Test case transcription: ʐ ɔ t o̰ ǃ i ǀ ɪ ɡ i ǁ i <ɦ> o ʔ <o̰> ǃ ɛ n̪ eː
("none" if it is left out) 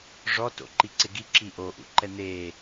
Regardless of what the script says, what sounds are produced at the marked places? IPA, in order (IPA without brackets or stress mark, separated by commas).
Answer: ʔ, ṵ